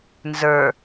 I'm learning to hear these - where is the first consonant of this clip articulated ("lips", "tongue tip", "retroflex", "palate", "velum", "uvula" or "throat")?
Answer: tongue tip